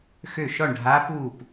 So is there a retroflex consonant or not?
yes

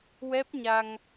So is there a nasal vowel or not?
no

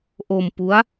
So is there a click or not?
no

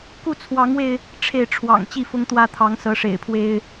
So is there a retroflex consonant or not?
yes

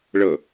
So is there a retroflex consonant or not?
yes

